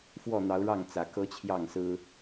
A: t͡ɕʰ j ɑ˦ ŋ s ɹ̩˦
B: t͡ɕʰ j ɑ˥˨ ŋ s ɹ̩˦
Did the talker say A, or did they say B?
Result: B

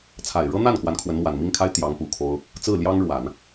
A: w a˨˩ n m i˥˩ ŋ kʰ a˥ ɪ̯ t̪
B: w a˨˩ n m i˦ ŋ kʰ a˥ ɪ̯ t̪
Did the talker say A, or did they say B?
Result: A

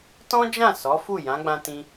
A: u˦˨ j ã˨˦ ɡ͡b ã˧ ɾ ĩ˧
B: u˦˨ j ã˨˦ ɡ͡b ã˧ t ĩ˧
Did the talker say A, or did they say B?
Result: B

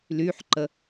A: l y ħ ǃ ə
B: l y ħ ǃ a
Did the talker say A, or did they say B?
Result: A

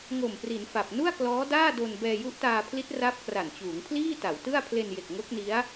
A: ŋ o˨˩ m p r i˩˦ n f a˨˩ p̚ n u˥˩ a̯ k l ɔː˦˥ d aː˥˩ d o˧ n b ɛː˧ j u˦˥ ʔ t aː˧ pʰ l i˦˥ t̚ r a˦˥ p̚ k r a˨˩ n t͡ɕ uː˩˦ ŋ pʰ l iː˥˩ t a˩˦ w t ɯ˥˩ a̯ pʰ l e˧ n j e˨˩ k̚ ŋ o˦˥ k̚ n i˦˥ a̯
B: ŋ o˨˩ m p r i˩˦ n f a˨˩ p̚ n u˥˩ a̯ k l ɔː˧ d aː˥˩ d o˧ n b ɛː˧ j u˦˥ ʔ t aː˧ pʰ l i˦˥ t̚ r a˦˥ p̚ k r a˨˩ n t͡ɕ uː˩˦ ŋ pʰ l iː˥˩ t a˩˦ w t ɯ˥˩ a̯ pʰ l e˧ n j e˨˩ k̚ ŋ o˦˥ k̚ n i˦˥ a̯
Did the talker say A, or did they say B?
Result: A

